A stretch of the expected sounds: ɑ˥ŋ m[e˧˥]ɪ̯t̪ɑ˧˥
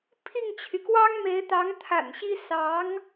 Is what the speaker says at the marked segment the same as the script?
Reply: yes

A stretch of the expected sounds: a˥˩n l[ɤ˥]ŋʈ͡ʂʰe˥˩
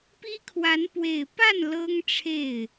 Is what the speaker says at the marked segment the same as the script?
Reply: yes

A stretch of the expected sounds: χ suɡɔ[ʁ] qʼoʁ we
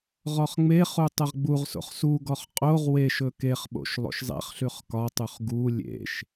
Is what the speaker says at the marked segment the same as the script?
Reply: no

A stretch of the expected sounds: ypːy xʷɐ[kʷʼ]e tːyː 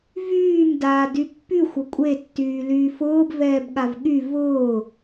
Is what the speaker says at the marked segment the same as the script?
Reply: yes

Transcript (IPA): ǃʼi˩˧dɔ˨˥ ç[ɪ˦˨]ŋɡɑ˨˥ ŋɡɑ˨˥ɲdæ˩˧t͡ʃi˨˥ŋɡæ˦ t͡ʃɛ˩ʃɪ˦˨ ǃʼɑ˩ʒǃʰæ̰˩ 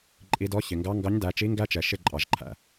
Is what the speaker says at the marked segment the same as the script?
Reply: no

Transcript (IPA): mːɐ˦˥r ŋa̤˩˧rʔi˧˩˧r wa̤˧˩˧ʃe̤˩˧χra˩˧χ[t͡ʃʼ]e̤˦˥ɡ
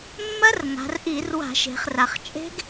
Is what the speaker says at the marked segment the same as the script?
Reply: yes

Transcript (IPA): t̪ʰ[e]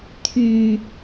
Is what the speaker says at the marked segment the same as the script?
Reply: no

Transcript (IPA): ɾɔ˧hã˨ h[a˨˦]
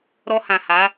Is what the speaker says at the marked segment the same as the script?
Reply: yes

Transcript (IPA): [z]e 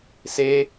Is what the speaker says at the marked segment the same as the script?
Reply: no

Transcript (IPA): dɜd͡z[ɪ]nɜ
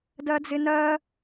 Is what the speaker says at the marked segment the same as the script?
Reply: yes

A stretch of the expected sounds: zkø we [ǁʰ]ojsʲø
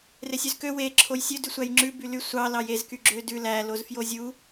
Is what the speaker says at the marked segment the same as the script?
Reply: yes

